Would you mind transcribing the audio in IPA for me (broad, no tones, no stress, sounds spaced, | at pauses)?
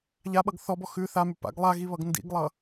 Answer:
ʎ a ɓ ʌ ɡ θ ɔ b ɔ x ʉ θ a m ʉ p a̰ ɡ lˠ a ɣ i β ʌ ɡ n d ḭ ɡ lˠ ʌ